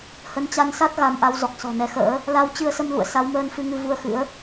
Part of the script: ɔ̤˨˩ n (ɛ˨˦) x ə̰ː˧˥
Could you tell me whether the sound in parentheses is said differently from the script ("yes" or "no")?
no